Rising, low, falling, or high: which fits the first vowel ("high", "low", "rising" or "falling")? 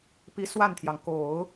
rising